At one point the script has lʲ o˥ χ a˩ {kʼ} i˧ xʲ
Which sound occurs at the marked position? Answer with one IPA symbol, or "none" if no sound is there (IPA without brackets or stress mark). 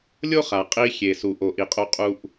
qʼ